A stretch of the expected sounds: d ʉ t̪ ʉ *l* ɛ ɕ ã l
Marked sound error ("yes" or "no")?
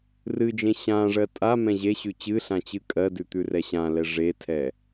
yes